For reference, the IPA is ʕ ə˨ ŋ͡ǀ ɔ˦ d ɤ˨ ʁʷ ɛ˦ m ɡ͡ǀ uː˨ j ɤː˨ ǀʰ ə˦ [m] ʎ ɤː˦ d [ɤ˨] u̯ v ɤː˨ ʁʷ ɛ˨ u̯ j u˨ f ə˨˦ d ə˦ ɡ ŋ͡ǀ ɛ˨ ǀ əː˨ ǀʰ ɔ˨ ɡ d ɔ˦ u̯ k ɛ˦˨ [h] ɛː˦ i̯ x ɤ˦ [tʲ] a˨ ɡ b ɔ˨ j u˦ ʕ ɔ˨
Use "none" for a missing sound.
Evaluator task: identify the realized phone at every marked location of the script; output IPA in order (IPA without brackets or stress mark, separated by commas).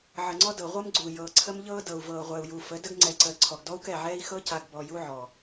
m, ɤ˨, ʕ, c